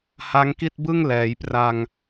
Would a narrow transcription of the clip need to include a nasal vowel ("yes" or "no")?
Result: no